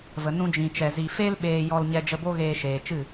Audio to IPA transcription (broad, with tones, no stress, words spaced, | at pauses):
və˨ nũ˧d͡ʒĩ˨t͡ʃɛ˨ zi˨fe˦l ɓeː˧jɔ˧l ɲɛ˧d͡ʒə˧bo˦ ɣeː˧ʃeː˨ t͡ʃɨ˦˨